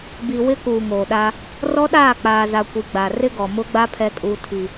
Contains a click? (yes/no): no